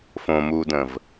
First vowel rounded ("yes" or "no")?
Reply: yes